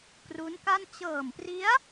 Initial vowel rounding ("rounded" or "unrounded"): rounded